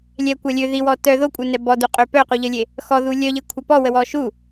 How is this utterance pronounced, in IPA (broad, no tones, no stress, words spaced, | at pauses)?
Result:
lʲɛkʷa lʲø ðiwɔ tœ ðokʷʼœnɛ bɔduqʼø pœquʎəlʲe | xɔðu lʲœʎekʷʰa pɔwəwɔ ʃu